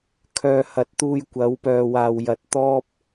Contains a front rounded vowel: yes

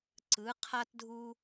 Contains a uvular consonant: yes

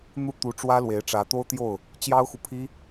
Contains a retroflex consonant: yes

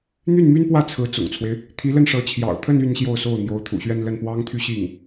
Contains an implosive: no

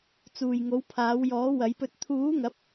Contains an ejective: no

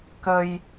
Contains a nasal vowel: no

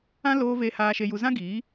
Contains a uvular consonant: no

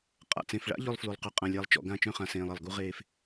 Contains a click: no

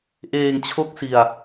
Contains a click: no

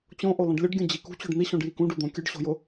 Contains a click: no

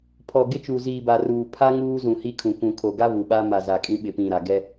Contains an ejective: yes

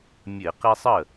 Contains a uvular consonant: yes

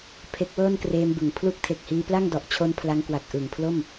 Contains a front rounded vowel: no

